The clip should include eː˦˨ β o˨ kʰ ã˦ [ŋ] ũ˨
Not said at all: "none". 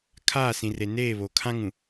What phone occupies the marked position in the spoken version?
ŋ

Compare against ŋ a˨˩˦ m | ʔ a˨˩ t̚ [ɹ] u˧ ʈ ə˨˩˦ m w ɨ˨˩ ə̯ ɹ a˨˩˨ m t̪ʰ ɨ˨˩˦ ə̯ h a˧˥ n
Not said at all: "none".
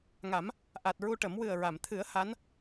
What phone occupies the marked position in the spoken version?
ɹ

